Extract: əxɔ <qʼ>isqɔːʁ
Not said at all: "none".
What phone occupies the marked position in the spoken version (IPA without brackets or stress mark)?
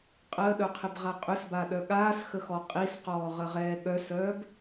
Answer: qʼ